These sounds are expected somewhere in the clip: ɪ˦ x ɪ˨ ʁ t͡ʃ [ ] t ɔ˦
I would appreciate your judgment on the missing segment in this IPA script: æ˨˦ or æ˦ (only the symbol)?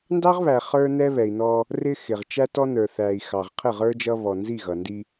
æ˦